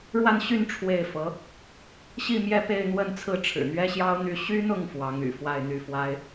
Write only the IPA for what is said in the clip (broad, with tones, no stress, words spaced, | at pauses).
ɻwa˥˧nɕy˥˧n ʈ͡ʂʰwe˥˩ɪ̯fɤ˧˥ | ɕi˥˧mjɛ˥˧ pe˥˧ɪ̯n̪wə˥˧nt͡sʰɹ̩˥˩ ʈ͡ʂʰɻ̩˨˩n̪ɥɛ˥ɕjɑ˥ʊ̯n̪y˥˩ ɕy˥n̪ʊ˥˩ŋ fwɑ˧˥ŋy̰˨˩ fwa˥˧ɪ̯n̪y˥˩fwa˥ɪ̯